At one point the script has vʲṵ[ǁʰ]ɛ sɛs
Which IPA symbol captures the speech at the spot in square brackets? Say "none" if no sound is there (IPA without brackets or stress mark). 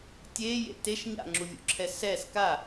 ǁʰ